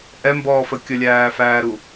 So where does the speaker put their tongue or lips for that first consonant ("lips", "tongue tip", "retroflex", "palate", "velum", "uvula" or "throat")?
throat